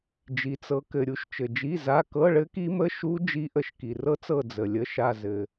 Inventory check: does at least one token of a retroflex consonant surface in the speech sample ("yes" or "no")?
yes